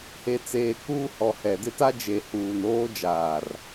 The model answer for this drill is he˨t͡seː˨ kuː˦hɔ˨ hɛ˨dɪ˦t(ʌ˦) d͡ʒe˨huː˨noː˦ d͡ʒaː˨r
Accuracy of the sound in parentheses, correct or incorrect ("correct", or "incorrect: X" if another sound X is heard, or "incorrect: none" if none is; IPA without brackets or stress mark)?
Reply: incorrect: a˦